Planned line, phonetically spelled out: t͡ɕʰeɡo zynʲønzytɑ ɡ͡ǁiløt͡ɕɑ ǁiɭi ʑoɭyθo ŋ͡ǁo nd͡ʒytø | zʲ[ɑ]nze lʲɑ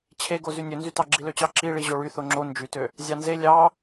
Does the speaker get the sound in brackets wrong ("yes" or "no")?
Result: no